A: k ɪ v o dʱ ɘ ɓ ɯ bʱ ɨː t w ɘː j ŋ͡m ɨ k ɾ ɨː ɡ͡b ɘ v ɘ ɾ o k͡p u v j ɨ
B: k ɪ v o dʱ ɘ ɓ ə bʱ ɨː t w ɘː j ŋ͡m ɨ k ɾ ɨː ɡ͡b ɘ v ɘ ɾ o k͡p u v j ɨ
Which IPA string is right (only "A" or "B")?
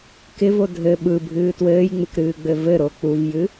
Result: A